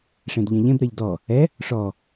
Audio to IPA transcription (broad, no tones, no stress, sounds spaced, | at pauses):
ʂ ẽ d ʎ ɛ̃ ʎ ẽ b ɾ ɛ ʎ d ɔ | ɛ | ʂ ɔ